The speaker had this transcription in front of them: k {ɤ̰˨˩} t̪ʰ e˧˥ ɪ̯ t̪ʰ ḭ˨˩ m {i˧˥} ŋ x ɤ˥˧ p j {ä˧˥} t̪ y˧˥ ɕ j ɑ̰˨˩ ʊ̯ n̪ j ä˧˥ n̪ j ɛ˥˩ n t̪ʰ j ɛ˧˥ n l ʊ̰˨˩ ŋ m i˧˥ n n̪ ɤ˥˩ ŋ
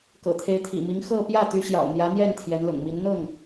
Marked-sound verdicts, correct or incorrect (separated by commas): correct, correct, incorrect